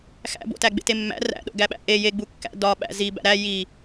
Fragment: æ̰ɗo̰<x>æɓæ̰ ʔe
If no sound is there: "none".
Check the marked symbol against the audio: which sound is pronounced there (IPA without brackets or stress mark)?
ɡ